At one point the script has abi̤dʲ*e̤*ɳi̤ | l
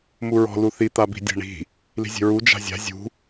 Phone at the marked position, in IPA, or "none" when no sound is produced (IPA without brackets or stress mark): e̤